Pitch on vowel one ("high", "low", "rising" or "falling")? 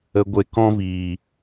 low